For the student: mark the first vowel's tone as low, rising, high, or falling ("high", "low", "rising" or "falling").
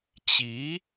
rising